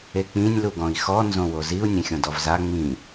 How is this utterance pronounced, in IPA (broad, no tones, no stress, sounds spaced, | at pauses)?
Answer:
e k͡p ĩ nʲ l u ɡ ɔ̃ i̯ x ɔ n z õ w o z i u̯ nʲ ẽ xʲ õ d ɔ v z a ŋ͡m ĩ